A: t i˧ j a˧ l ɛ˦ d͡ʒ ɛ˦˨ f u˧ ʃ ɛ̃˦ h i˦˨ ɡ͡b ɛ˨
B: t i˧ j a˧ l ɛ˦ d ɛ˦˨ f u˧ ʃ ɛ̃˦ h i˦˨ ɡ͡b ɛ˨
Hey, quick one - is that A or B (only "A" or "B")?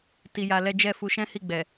A